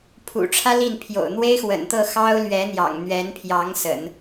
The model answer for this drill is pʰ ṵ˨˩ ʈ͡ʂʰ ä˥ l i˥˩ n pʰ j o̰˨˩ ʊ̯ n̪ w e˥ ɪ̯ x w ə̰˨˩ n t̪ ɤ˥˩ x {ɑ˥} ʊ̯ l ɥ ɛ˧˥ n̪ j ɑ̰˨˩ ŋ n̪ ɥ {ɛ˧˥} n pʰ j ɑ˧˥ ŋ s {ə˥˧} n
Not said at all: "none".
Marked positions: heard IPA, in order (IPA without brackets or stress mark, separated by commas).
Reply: ɑ˥, ɛ˧˥, ə̰˨˩˦